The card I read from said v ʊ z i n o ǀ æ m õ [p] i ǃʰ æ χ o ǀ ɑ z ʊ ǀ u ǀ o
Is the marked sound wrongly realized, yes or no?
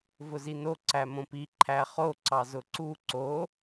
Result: no